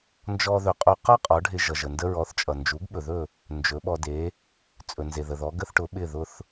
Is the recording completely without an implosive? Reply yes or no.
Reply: no